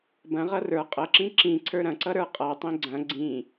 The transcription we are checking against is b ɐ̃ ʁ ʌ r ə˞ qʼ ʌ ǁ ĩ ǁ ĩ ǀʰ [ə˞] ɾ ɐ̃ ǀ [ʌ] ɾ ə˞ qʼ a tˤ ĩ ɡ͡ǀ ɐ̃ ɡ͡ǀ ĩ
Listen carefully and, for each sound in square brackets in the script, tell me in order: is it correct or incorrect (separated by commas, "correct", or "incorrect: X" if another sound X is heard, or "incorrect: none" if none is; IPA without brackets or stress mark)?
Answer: correct, correct